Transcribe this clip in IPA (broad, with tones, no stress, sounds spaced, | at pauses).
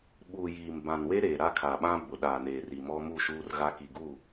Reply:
ɓ uː˨ j iː˨ m b ã˨ n w e˦ ɾ eː˨ ɾ a˦ kʰ a˨ ɓ ã˦ b ʊ˨ ɗ aː˨ n eː˨ r i˨ m ɔ˦ m u˦˨ ʃ uː˦ r ɣ a˦ k i˨ ɡ uː˦˨